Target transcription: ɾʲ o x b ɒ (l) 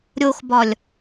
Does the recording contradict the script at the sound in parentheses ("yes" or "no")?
yes